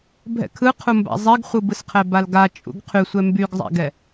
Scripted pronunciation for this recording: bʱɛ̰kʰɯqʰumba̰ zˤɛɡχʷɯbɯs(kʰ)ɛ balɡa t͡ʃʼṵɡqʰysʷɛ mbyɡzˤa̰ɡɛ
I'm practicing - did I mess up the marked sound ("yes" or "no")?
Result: yes